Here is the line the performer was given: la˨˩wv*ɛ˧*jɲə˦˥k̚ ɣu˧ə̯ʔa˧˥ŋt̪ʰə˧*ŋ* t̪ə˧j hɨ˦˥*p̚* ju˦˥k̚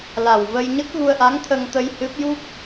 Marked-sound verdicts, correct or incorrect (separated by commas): incorrect, correct, correct